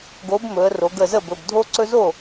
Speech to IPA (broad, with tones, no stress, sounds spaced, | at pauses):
ɡ o˨˥ b m ɵ˩˧ ə̯ r o˩˧ ɡ ə˧˩ z ə˥˩ b ɵ˩˧˩ b dʱ o˦ ǀ ɵ˦ z o˥˩